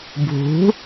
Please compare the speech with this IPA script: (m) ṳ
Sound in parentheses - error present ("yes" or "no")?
yes